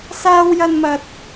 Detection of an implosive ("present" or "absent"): absent